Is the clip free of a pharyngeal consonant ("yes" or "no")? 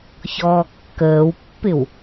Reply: yes